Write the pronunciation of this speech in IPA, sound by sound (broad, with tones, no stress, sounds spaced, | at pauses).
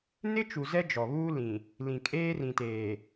n ɪ˦ t͡ʃ u˨ z ɛ˦ d͡ʒ ɔ˨ β uː˦ l ĩ˨ | l ĩ˨ kʼ eː˦ r ĩ˨ t eː˨